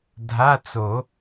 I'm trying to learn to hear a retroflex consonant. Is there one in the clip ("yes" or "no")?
no